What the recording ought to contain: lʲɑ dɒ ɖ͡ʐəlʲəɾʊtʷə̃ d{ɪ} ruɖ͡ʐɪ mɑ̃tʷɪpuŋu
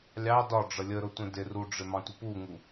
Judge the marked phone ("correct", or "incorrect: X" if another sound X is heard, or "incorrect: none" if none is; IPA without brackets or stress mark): correct